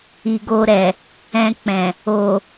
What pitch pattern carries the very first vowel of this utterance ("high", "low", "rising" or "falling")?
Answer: low